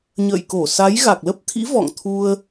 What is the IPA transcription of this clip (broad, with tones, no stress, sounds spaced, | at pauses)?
ɲ ə̰ː˧˨ j k o˧˩ s a˨˦ j ɣ a˨˩ k̚ l ə˦˥ p̚ t̪ʰ ḭ˧˥ v ɔ̰˧˨ ŋ t̪ʰ u˧ ə̯